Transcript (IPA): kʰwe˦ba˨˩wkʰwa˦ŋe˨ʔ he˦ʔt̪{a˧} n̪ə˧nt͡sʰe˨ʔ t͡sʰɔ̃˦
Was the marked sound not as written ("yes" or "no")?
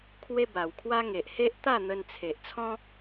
yes